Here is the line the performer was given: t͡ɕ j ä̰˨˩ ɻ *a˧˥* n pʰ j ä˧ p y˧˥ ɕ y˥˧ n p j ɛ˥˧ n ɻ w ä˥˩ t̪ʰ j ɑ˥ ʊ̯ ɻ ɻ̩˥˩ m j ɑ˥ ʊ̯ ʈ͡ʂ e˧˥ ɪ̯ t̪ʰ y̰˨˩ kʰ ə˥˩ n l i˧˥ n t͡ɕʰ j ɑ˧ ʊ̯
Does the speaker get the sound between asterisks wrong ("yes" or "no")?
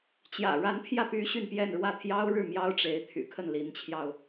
no